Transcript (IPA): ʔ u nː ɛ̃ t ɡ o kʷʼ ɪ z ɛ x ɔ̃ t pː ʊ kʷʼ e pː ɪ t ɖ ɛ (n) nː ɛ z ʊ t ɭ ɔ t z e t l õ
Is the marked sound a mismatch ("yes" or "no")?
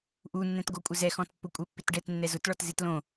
yes